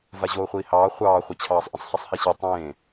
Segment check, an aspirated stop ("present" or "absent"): present